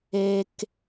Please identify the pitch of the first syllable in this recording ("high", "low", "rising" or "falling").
high